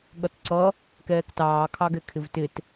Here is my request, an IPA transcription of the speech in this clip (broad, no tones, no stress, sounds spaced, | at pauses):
ɠ ʌ t ǀ ʌ | k ɛː k t ɑː kʰ ɑ ɡ ɛ kʰ ɪ v t ɪ t